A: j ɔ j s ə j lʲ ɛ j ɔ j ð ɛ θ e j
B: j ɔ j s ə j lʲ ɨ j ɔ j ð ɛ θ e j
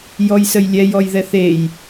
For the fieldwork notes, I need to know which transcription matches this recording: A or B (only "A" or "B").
A